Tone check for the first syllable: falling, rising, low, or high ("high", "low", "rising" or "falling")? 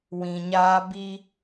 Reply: low